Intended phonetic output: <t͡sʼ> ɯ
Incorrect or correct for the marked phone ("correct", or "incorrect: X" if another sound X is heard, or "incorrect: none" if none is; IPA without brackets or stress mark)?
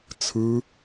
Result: incorrect: t͡sʰ